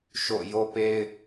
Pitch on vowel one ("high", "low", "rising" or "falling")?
falling